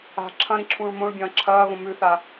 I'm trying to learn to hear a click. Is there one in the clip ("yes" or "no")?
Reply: yes